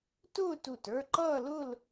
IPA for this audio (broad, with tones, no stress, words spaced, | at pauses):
tʊː˥˧tu˧˩tə˞˥˧ ǃʌː˥˧lʊ˥˧l